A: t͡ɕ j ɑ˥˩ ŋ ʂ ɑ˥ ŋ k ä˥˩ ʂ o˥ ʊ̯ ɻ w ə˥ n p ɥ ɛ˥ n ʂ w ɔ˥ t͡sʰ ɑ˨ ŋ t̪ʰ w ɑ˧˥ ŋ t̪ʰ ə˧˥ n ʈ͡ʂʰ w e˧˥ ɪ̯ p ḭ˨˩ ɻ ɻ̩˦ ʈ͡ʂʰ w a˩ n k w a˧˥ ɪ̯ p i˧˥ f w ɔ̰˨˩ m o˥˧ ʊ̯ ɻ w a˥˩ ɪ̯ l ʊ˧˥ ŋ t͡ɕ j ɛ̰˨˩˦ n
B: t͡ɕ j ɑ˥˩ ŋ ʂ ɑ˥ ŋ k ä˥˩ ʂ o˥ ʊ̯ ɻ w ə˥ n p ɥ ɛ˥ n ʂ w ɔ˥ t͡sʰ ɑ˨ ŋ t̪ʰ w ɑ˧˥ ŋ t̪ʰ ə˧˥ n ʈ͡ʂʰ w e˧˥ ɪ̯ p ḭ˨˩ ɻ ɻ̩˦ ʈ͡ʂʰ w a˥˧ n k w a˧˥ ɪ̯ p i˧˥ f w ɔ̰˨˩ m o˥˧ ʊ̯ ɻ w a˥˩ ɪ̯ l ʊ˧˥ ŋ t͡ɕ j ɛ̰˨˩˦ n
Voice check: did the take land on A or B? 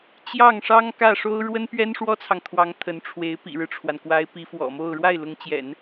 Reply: A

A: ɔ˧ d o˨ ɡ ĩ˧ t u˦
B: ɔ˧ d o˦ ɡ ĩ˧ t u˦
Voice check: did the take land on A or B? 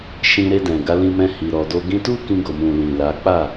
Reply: B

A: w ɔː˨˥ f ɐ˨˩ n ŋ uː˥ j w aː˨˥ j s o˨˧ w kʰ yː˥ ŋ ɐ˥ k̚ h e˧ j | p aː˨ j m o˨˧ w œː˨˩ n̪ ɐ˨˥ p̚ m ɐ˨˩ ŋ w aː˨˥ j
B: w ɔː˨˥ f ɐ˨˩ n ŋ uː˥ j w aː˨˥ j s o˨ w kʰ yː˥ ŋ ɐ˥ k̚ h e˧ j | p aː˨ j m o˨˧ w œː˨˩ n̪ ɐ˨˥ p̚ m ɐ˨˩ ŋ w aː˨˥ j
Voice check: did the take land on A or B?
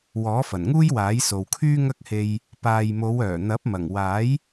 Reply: B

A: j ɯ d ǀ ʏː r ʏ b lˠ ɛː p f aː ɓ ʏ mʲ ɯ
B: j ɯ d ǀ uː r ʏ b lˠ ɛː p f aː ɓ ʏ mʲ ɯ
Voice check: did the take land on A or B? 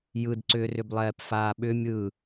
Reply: A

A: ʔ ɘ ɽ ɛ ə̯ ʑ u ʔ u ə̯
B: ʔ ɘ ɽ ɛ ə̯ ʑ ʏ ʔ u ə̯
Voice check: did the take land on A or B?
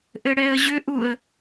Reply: B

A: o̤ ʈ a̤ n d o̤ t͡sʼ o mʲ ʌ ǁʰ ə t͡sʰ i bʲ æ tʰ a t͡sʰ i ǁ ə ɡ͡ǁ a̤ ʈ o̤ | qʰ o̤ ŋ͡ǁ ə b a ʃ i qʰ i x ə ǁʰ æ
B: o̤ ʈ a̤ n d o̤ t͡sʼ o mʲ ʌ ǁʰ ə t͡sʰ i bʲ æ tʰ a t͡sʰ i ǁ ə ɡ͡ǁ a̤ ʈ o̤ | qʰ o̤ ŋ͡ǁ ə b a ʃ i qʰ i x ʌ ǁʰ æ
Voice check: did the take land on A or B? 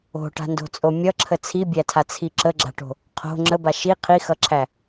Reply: B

